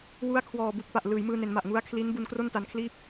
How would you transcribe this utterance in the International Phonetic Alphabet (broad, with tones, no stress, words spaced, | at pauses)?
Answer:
wu˦˥a̯kʰwɔː˨˩ bu˨˩k̚pa˨˩ʔ lɯː˩˦jmɯː˧ne˩˦nma˨˩ʔ ŋu˦˥a̯ kʰli˦˥n bu˧n kro˥˩nta˧nkʰliː˥˩p̚